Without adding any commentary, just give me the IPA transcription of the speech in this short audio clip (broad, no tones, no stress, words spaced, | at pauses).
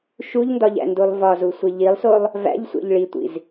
ʃuʎndɒʎæ̰ndulˠ vɒzusʷe ʎilˠsolˠ | væ̰ʎsʷḛʎ ɭitʷḭz